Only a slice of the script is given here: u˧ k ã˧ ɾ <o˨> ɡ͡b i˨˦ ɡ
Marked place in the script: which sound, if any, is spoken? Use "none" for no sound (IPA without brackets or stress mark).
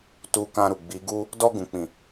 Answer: u˨